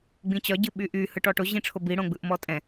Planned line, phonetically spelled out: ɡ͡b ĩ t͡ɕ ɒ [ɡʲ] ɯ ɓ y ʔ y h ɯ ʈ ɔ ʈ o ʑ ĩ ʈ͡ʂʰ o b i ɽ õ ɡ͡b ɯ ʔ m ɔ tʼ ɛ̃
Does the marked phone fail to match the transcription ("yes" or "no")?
yes